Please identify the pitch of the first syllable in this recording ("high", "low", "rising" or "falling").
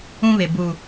high